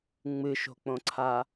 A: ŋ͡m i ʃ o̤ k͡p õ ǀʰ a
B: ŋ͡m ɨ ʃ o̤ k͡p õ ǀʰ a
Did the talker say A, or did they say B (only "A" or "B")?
B